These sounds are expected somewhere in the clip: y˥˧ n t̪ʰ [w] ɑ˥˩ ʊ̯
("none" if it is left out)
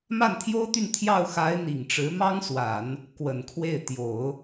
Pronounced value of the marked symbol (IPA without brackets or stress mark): j